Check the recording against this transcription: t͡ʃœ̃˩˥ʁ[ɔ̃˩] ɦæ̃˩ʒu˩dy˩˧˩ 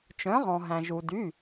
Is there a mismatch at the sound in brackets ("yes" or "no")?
no